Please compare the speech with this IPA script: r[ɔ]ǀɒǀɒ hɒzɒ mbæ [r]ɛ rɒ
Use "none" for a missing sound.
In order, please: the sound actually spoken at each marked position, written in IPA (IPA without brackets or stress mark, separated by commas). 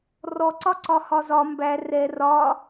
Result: ɔ, r